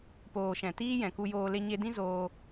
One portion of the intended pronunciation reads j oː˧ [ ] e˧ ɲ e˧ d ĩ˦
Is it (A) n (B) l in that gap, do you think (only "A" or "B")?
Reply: B